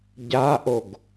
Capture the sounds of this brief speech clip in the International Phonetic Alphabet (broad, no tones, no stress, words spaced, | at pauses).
ɟaʔoɡ